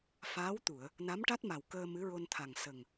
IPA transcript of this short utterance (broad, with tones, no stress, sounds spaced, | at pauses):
f aː˧˥ w t̪ u˨˩˨ ə̯ | n a˧˥ m ʈ a˦˥ t̚ m a˨˩ w k əː˧ m ɨ˧˥ ɹ o˧ n t̪ʰ a˨˩ ŋ s ə˨˩ ŋ